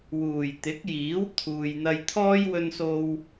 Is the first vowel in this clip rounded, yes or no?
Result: yes